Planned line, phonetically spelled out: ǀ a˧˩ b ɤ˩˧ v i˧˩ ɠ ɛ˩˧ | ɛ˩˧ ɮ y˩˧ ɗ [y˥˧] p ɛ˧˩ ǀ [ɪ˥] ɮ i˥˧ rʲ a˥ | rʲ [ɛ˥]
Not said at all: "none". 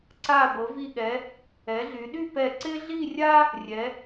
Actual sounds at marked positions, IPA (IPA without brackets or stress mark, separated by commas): y˥˧, ɪ˥, ɛ˩˧